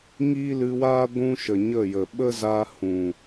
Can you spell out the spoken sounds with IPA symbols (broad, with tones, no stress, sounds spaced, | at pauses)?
ŋ iː˦ l ɨ˧ w aː˦ ɡʷ ũ˦ ʃ ə˨ ɲ ə˦˨ j ə˨ ɓ ə˦ z aː˧ h ũ˨